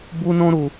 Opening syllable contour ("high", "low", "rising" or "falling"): high